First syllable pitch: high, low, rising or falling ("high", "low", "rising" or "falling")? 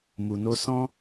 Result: low